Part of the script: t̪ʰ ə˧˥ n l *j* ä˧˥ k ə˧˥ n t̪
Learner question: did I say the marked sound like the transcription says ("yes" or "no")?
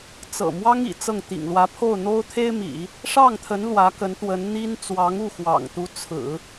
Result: no